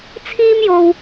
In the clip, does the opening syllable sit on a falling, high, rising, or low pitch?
high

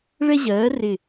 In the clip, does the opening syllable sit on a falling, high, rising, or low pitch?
high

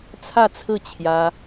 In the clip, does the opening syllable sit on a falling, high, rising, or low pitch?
falling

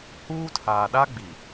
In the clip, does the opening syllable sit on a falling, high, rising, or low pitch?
high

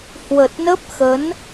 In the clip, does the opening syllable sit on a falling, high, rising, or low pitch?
low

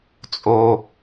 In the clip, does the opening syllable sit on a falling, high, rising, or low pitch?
high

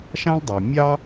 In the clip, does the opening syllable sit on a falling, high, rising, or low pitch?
high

